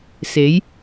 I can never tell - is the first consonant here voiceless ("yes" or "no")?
yes